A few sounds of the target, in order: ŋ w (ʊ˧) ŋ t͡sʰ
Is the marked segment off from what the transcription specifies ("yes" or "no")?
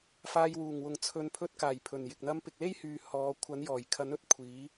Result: yes